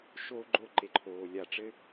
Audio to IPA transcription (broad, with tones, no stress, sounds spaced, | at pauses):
ʃ oː˦ ɡ͡ǃ o˦˨ ǃ e˧ ǃʰ oː˨ lʲ a˧ ʈ͡ʂ ɘ˦